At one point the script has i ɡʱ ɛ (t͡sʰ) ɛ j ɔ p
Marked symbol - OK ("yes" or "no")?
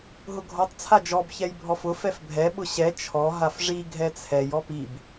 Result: yes